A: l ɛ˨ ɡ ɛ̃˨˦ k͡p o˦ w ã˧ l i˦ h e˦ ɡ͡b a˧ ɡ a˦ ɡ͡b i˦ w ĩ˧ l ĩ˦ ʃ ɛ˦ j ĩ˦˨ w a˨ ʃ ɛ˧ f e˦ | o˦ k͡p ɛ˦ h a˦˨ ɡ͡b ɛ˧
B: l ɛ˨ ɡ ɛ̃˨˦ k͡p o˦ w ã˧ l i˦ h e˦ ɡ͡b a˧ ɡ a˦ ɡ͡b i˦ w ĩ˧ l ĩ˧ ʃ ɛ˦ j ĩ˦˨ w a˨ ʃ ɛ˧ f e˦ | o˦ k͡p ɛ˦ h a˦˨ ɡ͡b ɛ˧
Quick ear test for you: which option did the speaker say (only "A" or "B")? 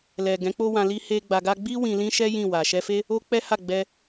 A